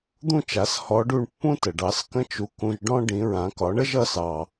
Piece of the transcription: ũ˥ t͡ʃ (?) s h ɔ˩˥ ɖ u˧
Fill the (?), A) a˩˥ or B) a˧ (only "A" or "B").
A